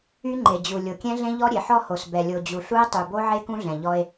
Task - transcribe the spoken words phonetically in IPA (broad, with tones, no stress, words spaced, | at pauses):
y˦ŋ͡ǃe˨d͡ʑu˨ lʲo˨kʲɛ̃˦ɮẽ˦ʎɔ˦ ɾʲe˨ħɔ˦ho˨s bɛ˨lʲo˨d͡ʑu˨ ɬu˦e̯ tˤy˨bo˦ʕe˦ kũ˦ɮɛ̃˨ ʎɔ˦e̯